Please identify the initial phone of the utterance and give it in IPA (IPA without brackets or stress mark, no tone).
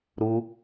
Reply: ɾ